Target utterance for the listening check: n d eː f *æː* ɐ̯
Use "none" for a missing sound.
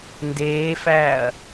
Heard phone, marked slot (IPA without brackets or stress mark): æː